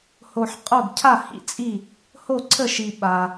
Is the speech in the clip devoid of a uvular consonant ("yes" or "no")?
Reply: no